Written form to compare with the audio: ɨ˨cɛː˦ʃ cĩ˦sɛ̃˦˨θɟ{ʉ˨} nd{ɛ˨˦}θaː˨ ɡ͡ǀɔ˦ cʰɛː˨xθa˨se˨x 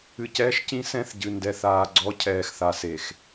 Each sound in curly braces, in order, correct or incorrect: incorrect, incorrect

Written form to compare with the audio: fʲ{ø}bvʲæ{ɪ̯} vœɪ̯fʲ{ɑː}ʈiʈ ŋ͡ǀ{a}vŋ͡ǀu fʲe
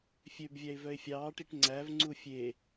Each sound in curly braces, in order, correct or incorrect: correct, correct, correct, incorrect

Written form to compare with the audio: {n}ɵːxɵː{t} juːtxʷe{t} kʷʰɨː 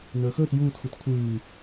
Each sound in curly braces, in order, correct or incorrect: correct, correct, correct

